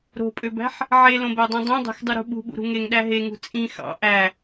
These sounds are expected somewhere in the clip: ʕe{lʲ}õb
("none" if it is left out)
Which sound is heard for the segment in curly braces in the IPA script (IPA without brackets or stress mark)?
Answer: l